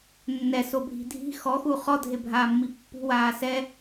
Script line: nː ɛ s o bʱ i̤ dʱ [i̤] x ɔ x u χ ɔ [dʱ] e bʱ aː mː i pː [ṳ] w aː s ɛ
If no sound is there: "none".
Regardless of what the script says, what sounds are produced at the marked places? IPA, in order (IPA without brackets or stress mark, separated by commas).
i̤, dʱ, ṳ